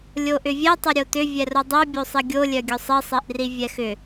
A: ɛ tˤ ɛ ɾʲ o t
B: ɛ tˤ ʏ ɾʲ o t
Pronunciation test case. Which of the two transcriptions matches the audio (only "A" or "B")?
B